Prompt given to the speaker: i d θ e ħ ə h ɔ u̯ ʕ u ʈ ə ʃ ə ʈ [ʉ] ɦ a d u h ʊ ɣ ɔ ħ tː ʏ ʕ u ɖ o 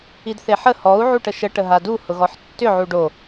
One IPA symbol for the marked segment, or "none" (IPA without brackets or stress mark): ə